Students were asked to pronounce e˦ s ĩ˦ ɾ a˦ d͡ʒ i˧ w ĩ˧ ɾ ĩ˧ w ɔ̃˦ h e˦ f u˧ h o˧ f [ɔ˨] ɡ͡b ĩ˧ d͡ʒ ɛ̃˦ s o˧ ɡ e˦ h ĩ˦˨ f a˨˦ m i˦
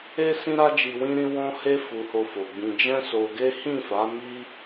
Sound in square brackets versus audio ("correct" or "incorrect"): incorrect